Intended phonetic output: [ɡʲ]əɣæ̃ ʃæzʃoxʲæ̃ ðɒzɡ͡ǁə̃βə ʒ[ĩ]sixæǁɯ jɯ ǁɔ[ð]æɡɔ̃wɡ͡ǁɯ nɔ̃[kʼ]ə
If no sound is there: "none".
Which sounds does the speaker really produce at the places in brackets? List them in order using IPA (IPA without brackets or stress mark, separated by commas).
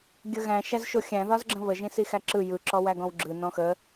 ɡʲ, ĩ, w, x